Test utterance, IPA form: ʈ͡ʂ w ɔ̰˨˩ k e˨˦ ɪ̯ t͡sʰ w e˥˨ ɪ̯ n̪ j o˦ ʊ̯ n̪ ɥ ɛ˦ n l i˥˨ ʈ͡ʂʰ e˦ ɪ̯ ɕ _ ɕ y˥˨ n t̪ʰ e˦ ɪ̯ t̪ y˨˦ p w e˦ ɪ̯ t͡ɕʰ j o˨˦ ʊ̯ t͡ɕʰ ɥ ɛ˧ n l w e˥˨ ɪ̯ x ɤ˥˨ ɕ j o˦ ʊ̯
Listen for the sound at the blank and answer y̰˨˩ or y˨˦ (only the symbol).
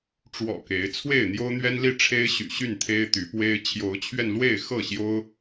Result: y̰˨˩